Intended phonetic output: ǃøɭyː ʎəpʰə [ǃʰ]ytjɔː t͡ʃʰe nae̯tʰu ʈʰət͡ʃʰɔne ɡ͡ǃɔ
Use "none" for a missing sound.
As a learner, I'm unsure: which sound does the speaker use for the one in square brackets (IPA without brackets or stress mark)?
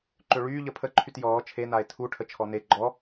ǃʰ